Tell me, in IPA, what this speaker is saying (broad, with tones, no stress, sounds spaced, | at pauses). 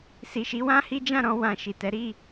s i˨ ʃ i˨˦ w ã˦ h i˦ d͡ʒ ã˦˨ ɾ ɔ̃˧ w ã˨ ʃ i˨ t ɛ˨˦ ɾ i˦˨